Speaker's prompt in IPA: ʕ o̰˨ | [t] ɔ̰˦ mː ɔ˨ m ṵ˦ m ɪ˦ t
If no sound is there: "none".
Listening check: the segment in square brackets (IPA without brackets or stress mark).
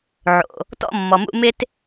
t